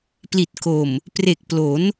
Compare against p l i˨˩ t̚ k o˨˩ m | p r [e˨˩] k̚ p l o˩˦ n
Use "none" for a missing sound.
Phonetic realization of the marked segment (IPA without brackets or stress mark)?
e˨˩